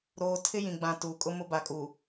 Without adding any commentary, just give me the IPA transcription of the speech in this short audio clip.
ɾ oː˨ tʰ ɪ˦ j ĩ˨ ɡ͡b ã˨ t uː˨ kʼ ʊ˦ m ʊ˦ b a˨ kʼ uː˨

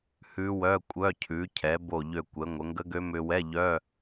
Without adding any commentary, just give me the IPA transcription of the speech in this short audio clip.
h ʉ˦˥ w œ˧˥˧ kʷʼ œ˧˥˧ cʰ ʉ˩˧ cʰ ɛ˩˧ b o˧˩ ʎ ø˧˩ kʷ ɛ˩˧ ŋʷ ə˩˧ ŋ ɡ ə˦˥ ɡ ø˦˥ m ʏ˧ w ɛ˧˥˧ ʎ œ˧˥˧

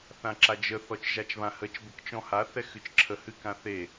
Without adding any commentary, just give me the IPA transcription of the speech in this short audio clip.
θ ã ǁ a d͡ʒ ə θ ɔ t͡ʃ ʒ a t͡ʃ β ã h ə t͡ʃ b ə k t͡ʃ ɔ̃ h a θ ɛ x ɨ t͡ʃ ǁʰ ə h ɨ k ã θ e

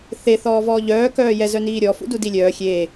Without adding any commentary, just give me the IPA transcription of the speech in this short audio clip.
θ e θ ɔː v ɔː ʎ œː k œː j ɛ z œ n iː ɾʲ ɔ f ṵ d u d i lʲ œː xʲ e

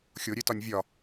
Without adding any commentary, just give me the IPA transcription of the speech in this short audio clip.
xʲ o ɾʲ e t ɒ nʲ vʲ ɒ

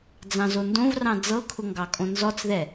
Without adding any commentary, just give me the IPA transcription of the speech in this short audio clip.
d͡z ɑ̃ z o n d õ v r ɑ̃ d͡z ɤ kʰ ʊ ŋ ɡ ɑ kʼ õ n z ɔ t͡s ð ɛ

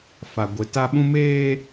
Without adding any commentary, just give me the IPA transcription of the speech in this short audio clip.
f a˦ ɡʷ ɪ˦ t a˦ ɓ ũ˦ m eː˦

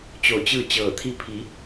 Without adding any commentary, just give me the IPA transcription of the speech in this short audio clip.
t͡ɕ oː˧˩ t͡ɕ ɯː˥˨ t͡ɕ ɤː˧˩ t̪ʰ i˧˥ pʰ i˩˧

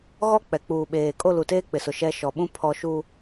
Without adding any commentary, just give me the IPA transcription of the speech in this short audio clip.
ɣ ɔ˦ k͡p ɛ˨ k͡p uː˨ ɓ eː˨ kʼ o˦˨ l u˨ t eː˦ k͡p ɪ˨ s ʊ˨ ʃ ɛ˦ ʃ ɔ˨ ɓ ũ˦ pʰ ɔ˨ ʃ u˨

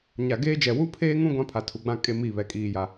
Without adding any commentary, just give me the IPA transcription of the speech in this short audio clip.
ɲ a˨ ɡ eː˦ d͡ʒ ɛ˨ w u˦ pʰ eː˦ ŋ ũ˦ ɡʷ ã˦ pʰ a˨ tʰ u˨ ɡ͡b ã˦ kʼ e˦ m i˦˨ β ɛ˨ kʼ iː˨ j a˨

